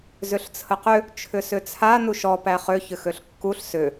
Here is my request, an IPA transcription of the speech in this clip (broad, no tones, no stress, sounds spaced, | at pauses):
z ʏ ɬ t͡sʰ ə q ʏ | t͡ʃʰ ʏ s ʏ t͡sʰ a n u ʃ ɔ p æ χ ø ç ʏ x ø ɬ kː u ɬ s ʏ